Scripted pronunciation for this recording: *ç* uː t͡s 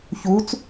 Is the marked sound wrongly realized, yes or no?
no